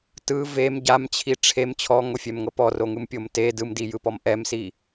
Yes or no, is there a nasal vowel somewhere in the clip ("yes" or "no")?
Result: no